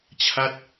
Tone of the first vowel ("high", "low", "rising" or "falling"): falling